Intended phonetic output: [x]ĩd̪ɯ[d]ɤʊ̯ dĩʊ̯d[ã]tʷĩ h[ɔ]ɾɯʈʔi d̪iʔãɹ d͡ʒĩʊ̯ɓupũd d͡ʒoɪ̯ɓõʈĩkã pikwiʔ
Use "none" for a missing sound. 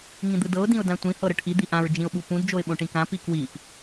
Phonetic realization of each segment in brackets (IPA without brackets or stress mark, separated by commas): ŋ, d, ã, ɤ